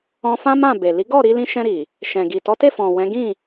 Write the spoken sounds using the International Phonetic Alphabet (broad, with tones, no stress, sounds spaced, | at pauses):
ɔ̃˧ f ã˦ m ã˦˨ b e˨ l i˨˦ ɡ ɔ˦˨ ɾ i˧ l ĩ˧ ʃ ɛ̃˧ ɾ i˨ | ʃ ɛ̃˨ ɡ i˨ t ɔ˨˦ t e˦˨ f ɔ̃˨ w ɛ̃˨˦ ɡ ĩ˦˨